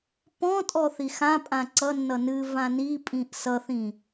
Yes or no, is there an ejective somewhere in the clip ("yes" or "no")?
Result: yes